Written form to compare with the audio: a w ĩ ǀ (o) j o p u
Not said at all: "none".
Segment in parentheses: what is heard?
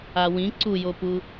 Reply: u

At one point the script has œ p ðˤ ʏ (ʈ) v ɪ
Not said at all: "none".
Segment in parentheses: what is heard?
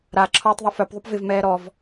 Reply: p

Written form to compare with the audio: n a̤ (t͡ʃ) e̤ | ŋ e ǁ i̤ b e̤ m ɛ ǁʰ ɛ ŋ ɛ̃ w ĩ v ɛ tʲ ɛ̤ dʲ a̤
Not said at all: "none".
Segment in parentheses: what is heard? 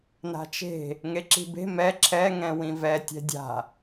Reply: t͡ʃ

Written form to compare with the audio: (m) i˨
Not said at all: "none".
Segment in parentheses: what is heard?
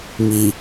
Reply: m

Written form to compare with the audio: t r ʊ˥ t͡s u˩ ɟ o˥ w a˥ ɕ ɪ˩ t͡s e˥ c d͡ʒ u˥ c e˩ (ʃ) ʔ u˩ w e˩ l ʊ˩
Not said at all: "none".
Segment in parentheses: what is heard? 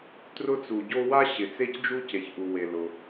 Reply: ç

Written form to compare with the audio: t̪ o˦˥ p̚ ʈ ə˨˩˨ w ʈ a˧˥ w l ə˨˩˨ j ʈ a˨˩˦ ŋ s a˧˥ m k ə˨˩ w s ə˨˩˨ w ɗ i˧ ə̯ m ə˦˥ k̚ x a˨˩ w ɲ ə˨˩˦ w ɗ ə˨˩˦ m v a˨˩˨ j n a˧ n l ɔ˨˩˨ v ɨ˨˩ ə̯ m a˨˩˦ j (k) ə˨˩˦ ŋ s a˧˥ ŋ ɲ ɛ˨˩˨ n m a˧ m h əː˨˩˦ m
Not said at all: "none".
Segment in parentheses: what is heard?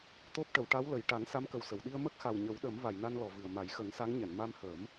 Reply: x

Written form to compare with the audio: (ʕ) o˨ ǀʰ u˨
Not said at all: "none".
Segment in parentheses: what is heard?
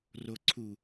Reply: r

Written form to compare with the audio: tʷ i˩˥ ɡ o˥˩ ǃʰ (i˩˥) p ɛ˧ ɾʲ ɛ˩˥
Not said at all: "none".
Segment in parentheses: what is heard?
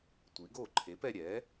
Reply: e˩˥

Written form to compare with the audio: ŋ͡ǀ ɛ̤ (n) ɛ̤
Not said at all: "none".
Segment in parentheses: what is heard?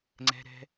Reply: ɾ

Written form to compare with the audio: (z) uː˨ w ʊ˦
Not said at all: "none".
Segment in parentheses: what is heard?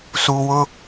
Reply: s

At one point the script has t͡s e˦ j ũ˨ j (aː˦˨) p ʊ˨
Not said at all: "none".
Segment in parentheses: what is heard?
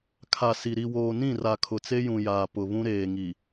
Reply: aː˨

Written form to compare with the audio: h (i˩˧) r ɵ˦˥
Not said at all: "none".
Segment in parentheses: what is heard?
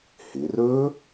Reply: ɪ˩˧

